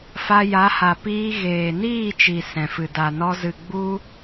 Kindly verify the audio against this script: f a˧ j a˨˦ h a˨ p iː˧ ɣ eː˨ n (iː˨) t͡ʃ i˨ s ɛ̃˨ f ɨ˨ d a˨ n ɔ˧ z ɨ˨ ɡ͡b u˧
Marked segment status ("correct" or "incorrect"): incorrect